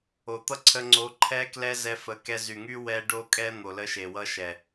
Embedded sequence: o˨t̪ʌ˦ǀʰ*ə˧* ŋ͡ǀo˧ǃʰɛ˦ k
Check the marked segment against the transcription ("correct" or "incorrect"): correct